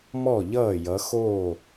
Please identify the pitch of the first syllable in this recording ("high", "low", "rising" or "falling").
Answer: falling